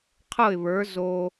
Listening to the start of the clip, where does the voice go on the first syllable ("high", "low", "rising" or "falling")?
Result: falling